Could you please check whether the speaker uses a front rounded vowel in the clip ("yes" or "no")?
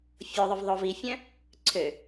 yes